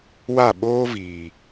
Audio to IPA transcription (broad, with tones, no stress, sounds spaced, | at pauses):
w a˦˨ ɓ oː˦ v iː˨